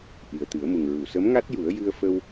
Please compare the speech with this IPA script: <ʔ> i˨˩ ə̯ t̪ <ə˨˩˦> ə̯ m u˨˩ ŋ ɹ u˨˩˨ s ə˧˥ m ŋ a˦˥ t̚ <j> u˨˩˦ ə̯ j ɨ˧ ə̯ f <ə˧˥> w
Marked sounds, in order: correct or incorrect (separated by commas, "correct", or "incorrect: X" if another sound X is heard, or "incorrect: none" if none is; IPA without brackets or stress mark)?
correct, incorrect: ɨ˨˩˦, correct, incorrect: ə˧